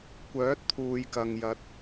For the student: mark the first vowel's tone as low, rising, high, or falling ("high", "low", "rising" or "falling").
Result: rising